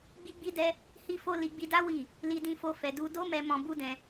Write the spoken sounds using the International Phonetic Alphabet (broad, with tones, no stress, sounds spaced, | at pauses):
ɡ͡b i˦ ɡ͡b i˦ d ɛ˦ | h i˦ f o˦ l i˧ ɡ͡b i˧ d a˦ w i˦˨ | l i˧ d ĩ˧ f o˧ f ɛ˨ d u˧ d o˦ m ɛ˧ m ɔ̃˧ b u˦ d ɛ̃˧